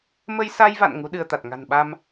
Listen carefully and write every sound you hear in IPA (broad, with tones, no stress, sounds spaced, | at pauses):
m ə˧ j s a˧ j v a̰˧˨ n ŋ u˨˦ ɗ ɨ˧ ə̯ t̪ a˨˩ t̚ ŋ a̤˨˩ n ɓ a˧ m